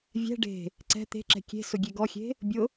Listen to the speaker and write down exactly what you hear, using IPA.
vʲ ɛ̤ ɖ e̤ | ǀ ɛ̤ t̪ e̤ ǁ ɛ̤ kʲ e̤ s ʊ ɡʲ e ɡ ɔ xʲ e̤ | bʲ ʊ

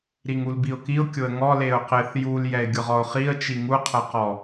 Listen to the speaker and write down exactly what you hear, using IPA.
ɾ i ŋ u l b i ʊ̯ k i ʊ̯ kʲ ʊ ə̯ ŋ ɔ l e ʊ̯ q ɪ θ j u l j ɛ ɪ̯ ɡʲ ʊ ʁ ɔ ʊ̯ χ i ə̯ t͡ʃ i ŋ u qʰ ɛ q ɔ

